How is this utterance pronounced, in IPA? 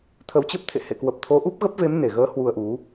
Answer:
t̪ʰ ə˨˦ w t͡ɕ ə˦˥ p̚ t̪ʰ ḛ˧˨ h ḛ˧˨ k w ə˨˩ p̚ t̪ʰ o˨˦ ʔ u˦˥ p̚ ɣ ə˦˥ p̚ v e˨˦ m n e˧˩ ɣ əː˨˦ h w u˧ ə̯ ʔ u˨˦

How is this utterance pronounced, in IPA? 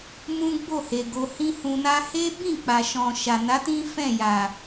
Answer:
m ũ˦ ɡ͡b o˦˨ h e˨ ɡ o˧ h ĩ˦ h ũ˧ n a˦ h e˦ b ĩ˦˨ k͡p a˨ ʃ ɔ̃˨ ʃ a˨ n a˨˦ t ĩ˦ f ɛ̃˦˨ j a˨

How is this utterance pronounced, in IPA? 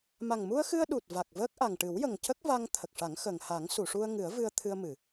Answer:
m a˨˩ ŋ m u˧ ə̯ x ɨ˧ ə̯ ɗ u˨˩ t̚ v a˨˩ k̚ v əː˦˥ k̚ ʔ a˨˩ ŋ ʈ ɨ˨˩˦ w j ə˨˩ ŋ c ə˦˥ k̚ v a˧ ŋ t̪ʰ ə˨˩ k̚ ʂ a˨˩˦ ŋ x əː˨˩ ŋ h a˨˩˦ ŋ s u˨˩˨ ʂ u˧ ə̯ ŋ ɨ˨˩˦ ə̯ v ɨ˧ ə̯ t̪ʰ ɨ˧ ə̯ m ɨ˨˩˨

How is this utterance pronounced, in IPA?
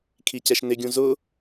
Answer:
kʰ i c ɛ ʃ n ɪ ɡʲ ũ z ʊ

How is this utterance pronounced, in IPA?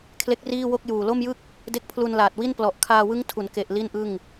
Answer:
kʰ l e˦˥ k̚ r iː˥˩ w o˥˩ k̚ j uː˨˩ l o˥˩ m j ɯ˥˩ k̚ | d e˦˥ k̚ pʰ l u˧ n l aː˨˩ t̚ w i˥˩ n p l ɔ˨˩ ʔ kʰ aː˧ w ɯ˦˥ ŋ tʰ u˩˦ n k e˨˩ ʔ l i˥˩ n ʔ ɯ˥˩ ŋ

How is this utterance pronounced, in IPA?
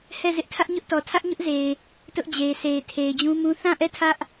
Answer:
h ɛ˦˨ z ɪ˦ ʔ tʰ ä˦ ʔ ɲ ʊ˦ ʔ t ɔ˨ tʰ ä˦ ʔ ɲ ʊ˦ ʔ z e˨ ɪ̯ | t ʊ˦ ʔ d͡ʑ e˨ ɪ̯ sʰ e˨ ɪ̯ tʰ e˨ ɪ̯ d͡ʑ ũ˦ m ũ˦ θ ã˦˨ ʔ ɛ˦˨ tʰ ä˦ ʔ

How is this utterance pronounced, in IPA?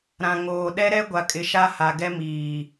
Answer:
ɾ ã˨ ŋ oː˨ ɗ ɛ˦ ɾ ɛ˦ ɡʷ a˨ kʼ ɪ˨ ʃ a˦ h a˨ ɡ ɛ˦ m iː˨

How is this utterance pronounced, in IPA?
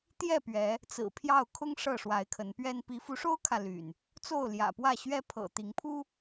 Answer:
t̪ j ɛ˥˨ p ɥ ɛ˨˦ | t͡s ɹ̩˨˩ pʰ j ɑ˥˨ ʊ̯ kʰ ʊ˦ ŋ ʂ ɤ˥˨ ʂ w a˨˦ ɪ̯ kʰ ə˨˦ n p ɥ ɛ˦ n p i˨˦ f u˨˦ ʂ o˦ ʊ̯ kʰ ä˨ l y̰˨˩ n | t͡s o˥˨ ʊ̯ l j ä̰˨˩ p w ä˥˨ ɕ ɥ ɛ˦ pʰ ɤ̰˨˩ t̪ i˨˦ ŋ pʰ u˦

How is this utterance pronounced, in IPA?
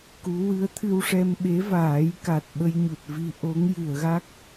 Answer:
k u˧˥ w ɨ˧˥ ə̯ t̪ʰ ɨ˧ w ʂ ɛ˧ m ɓ e˧˥ v aː˨˩˦ j k a˨˩ t̚ ɓ ə˧ j ɲ u˨˩ t̚ v i˧ ʔ o˧˥ ŋ j ɨ˨˩˨ ə̯ ɣ a˦˥ k̚

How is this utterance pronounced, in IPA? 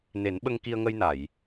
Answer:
n e˨˩˦ n ɓ ə˧ ŋ k i˧ ə̯ ŋ ə˧ j n a˨˩˨ j

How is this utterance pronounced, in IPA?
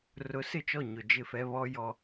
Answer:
r ʊ˨˦ s ɪ˦˨ t͡ʃ ɔ˦˨ ɲ ʊ˨ d͡ʒ ɪ˦˨ f ɛ˦ β ɔ˦ j ɔ˦

